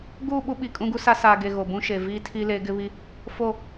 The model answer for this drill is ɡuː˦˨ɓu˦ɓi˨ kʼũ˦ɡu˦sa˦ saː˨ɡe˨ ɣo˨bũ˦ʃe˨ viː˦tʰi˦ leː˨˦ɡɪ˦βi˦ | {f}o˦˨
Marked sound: correct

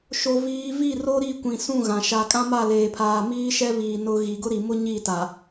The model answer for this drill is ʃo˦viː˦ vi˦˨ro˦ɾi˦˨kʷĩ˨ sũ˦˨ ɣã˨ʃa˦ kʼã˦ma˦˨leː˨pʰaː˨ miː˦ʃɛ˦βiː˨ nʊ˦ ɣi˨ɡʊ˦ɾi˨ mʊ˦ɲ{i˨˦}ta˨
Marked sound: incorrect: i˦˨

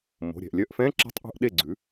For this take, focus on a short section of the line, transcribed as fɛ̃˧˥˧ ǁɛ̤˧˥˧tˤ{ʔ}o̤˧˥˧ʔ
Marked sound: correct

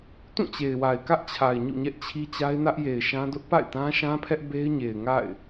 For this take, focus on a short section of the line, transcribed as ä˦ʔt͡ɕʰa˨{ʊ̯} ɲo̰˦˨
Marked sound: incorrect: ɪ̯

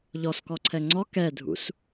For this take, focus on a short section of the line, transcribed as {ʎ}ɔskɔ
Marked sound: correct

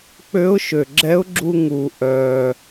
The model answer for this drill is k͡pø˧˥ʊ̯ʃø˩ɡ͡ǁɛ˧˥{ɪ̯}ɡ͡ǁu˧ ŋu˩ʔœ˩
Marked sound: incorrect: ʊ̯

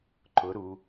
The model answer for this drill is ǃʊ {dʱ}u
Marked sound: incorrect: ɾ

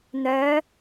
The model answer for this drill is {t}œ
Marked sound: incorrect: n̪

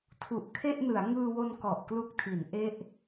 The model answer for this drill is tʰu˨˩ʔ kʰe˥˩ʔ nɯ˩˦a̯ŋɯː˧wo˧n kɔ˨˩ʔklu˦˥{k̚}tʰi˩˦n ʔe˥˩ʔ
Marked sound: correct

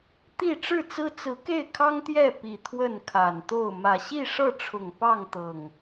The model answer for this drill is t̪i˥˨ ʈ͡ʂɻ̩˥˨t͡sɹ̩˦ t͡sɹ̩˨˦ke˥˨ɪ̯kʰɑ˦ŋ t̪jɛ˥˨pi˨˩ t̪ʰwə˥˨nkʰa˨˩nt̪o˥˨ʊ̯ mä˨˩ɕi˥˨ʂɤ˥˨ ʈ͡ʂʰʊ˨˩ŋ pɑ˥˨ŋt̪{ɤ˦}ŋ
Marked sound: incorrect: ɤ˨˩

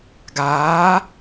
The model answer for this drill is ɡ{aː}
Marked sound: correct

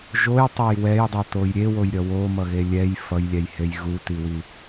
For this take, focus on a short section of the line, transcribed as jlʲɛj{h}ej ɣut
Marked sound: correct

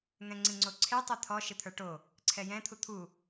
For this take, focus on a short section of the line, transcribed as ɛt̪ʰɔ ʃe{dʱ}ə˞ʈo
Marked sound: incorrect: t̪ʰ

